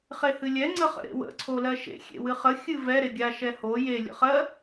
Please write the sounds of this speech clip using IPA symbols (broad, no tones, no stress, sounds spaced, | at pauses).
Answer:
χ e h ɨ lʲ ɛ ŋ͡ǀ ə χ ə̰ ɾ ḛ w ə̰ ǀʰ o l ɜ ʃ ḛ xʲ ḛ w ɨ χ ə xʲ ɨ v ɛ ɾ e ɡʲ a ʃ ɛ h o j e lʲ ə̰ χ ɜ